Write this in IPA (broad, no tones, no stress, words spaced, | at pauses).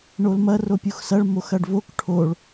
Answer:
ɳolmɐ ropʲuxsɐɭ moxɐɖvok ʈʰoɭ